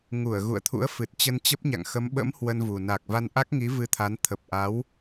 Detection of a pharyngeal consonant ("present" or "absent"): absent